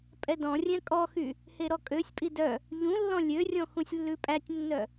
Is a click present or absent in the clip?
absent